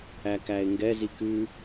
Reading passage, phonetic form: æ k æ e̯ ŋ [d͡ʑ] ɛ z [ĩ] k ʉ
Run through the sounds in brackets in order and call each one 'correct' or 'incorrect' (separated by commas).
incorrect, incorrect